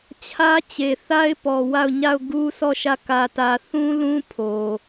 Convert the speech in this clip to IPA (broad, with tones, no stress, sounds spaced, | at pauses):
t͡ɕʰ ä˦ t͡ɕ e˨ θ a˦ ɪ̯ p ɔ˨ w a˦˨ ʊ̯ ɲ a˦˨ ʊ̯ ɡ u˦ sʰ ɔ˦˨ ʃ ä˦˨ k ä˦ t ä˦ θ ũ˦ l ũ˦ pʰ o˨